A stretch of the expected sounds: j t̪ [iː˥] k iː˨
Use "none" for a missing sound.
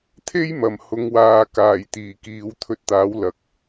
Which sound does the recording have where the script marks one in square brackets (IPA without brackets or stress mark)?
iː˨˩